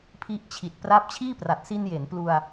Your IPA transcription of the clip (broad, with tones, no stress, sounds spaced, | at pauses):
pʰ i˦˥ ʔ t͡ɕʰ i˨˩ t̚ p r a˦˥ p̚ t͡ɕʰ iː˥˩ p r a˨˩ t̚ s i˧ n j e˩˦ n p l u˧ a̯